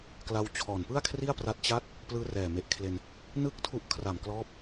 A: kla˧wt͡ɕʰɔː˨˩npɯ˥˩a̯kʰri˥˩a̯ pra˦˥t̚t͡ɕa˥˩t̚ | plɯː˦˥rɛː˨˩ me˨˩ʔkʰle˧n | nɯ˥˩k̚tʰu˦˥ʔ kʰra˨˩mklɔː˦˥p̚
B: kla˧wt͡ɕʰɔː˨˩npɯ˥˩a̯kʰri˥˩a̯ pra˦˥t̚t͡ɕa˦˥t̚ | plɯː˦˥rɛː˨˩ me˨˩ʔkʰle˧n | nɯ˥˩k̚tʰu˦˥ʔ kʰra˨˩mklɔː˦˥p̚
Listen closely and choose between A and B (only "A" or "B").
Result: A